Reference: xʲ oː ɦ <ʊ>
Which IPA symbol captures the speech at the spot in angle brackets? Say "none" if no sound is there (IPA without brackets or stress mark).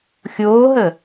ə